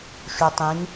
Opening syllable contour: low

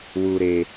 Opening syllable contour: low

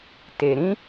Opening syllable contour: low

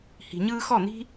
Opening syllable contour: low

